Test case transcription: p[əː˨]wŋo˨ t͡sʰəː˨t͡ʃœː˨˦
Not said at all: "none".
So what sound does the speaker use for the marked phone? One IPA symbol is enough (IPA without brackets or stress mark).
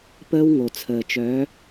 əː˦